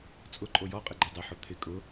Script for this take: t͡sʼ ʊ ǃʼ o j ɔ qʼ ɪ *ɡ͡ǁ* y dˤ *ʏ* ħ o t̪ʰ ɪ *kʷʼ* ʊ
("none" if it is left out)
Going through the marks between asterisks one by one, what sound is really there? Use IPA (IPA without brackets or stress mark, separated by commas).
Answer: ɡ͡ǃ, ʏ, kʼ